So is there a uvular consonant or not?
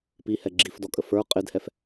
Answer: yes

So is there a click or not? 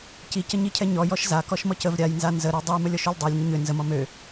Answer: no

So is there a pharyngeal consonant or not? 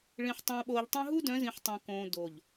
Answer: yes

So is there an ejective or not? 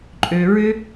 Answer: yes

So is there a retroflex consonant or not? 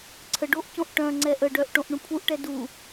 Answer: yes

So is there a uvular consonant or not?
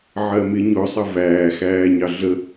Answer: no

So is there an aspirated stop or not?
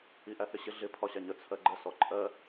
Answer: yes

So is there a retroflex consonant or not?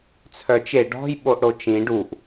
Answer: yes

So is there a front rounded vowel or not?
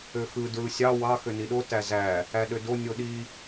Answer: yes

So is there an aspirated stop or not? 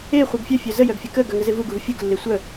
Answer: no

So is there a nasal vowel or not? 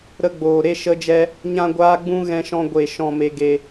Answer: yes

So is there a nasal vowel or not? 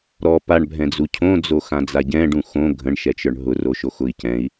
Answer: yes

